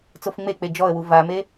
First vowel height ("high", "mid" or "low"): mid